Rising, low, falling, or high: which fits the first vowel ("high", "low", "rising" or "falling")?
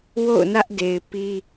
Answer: falling